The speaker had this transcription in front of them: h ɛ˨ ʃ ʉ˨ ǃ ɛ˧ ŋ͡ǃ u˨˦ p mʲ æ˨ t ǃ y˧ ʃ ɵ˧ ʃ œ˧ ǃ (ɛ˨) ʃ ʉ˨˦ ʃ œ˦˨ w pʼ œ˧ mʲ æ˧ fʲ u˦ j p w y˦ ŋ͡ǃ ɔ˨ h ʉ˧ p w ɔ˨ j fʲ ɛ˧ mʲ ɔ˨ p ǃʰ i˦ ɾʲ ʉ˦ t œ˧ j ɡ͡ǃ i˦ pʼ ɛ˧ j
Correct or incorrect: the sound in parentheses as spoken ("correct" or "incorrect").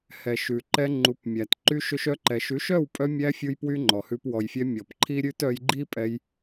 correct